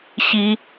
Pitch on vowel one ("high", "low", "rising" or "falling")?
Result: high